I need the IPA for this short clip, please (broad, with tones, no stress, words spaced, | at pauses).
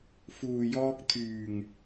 fuː˨jɔː˧k̚t̪ʰyː˨˩ŋ